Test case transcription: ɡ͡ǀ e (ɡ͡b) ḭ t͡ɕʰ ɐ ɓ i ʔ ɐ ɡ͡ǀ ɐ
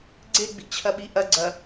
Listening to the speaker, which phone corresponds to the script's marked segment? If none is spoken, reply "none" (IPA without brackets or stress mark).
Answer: ɡ͡b